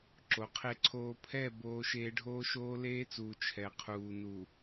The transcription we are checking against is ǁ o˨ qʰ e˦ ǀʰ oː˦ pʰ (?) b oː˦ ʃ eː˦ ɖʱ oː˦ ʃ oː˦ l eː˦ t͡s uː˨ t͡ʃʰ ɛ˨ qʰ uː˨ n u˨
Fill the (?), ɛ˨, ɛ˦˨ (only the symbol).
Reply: ɛ˦˨